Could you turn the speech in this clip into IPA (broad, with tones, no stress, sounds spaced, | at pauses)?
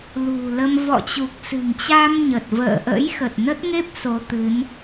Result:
l ṳ˨˩ l ə˧ m v ɔ̰˧˨ t͡ɕ u˨˩ k̚ s ɨ̤˨˩ ŋ t͡ɕ a˧ m ɲ ə˨˩ t̚ v ə̰ː˧˨ ʔ ə̰˧˥ j x ə˨˩ t̚ n ə˦˥ t̚ ŋ e˦˥ p̚ s o˨˦ t̪ ɨ˨˦ n